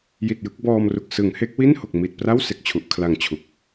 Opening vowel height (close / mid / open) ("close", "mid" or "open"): close